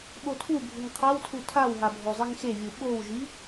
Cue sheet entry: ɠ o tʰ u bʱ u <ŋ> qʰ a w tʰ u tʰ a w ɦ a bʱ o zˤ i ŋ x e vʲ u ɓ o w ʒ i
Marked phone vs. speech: correct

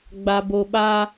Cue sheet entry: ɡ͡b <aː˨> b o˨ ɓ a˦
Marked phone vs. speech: incorrect: a˨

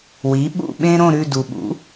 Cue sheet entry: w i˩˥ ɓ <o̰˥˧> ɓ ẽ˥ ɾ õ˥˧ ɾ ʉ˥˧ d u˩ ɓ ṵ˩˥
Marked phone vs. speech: incorrect: ṵ˥˧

